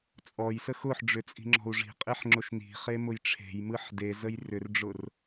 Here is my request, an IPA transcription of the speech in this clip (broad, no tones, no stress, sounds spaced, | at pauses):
t͡sʼ ɔ j s ə x ʊ ħ ɖ͡ʐ ʏ t͡sʼ i̤ ŋ͡ǁ ɔ̤ u̯ ʐ i̤ qʼ e ħ ŋ͡ǁ ʊ ʃ n i̤ χ e m ʊ j ʈ͡ʂʰ e̤ j m ɯ ħ d e z ə j r ʏ r ɖ͡ʐ ʊ r